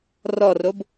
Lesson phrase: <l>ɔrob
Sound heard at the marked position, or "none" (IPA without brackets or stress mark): r